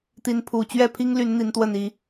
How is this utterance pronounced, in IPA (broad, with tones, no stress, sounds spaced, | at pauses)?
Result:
t̪ i˨˦ n pʰ u˨˩ t͡ɕ ɥ ɛ˥˨ pʰ i˦ ŋ l y˨˦ n n̪ i˨˦ n t̪ w ə˥˨ n i˦